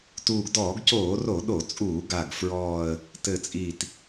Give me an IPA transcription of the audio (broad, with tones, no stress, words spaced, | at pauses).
tuː˨˩ɡdɔː˧˩˧ɡcoː˧˩˧ro˧˩˧ ɗo˧˩˧t͡sʼuː˧˩˧ ɡa˨˩ɡ fɹɔː˨˩ə̯ | tɘ˨˩t͡sʼi˨˩t